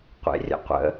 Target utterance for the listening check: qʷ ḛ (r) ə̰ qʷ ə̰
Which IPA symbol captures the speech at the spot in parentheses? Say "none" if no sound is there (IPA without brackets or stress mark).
rʲ